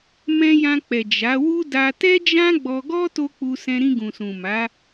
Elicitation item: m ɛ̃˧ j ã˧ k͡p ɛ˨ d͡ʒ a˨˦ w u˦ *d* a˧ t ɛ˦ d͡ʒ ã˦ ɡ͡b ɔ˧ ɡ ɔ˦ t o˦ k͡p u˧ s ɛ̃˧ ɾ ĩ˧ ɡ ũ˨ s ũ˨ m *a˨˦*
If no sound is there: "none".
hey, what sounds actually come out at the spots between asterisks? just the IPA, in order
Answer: d, a˨˦

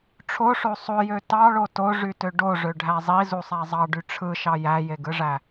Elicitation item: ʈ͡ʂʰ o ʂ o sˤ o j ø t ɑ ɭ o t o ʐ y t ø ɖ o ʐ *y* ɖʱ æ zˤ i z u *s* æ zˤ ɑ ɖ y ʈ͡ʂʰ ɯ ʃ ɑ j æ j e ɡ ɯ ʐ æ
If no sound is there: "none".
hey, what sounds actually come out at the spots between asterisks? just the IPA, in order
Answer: ø, sˤ

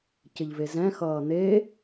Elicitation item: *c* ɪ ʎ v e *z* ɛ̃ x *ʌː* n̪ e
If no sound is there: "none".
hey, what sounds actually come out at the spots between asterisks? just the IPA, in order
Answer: c, z, ʌː

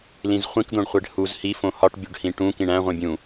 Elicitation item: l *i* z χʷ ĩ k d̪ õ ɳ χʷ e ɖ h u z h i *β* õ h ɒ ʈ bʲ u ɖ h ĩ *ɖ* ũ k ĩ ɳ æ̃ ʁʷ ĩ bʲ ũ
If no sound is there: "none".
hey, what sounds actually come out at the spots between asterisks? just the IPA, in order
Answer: ĩ, f, ʈ

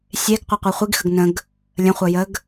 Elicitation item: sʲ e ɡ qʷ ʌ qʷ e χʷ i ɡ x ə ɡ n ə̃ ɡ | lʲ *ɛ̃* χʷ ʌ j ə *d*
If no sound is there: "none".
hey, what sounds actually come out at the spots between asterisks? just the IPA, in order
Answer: ə̃, ɡ

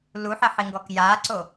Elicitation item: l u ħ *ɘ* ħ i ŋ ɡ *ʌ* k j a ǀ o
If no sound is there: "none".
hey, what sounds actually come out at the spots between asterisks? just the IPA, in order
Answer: ɛ, ɔ

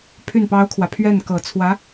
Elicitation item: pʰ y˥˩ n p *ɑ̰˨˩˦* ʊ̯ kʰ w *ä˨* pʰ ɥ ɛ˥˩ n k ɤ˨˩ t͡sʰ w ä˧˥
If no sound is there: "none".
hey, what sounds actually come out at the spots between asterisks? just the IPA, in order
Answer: ɑ˥, ä˨

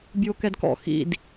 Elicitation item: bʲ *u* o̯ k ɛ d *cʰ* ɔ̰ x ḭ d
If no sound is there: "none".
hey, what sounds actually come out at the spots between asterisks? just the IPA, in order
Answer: u, k

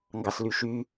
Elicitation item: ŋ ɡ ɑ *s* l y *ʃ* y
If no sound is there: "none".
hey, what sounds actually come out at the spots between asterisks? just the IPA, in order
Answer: s, ʃ

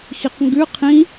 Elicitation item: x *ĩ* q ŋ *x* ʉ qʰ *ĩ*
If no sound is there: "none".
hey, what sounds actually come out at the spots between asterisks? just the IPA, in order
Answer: i, ɡ, ĩ

